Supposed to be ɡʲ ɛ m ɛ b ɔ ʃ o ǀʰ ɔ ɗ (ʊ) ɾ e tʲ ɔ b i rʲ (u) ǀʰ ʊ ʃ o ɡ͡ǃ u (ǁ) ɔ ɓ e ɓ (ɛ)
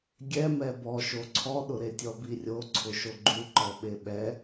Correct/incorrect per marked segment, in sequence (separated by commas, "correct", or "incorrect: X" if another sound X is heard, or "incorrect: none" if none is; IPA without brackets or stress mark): correct, incorrect: o, incorrect: ǃ, correct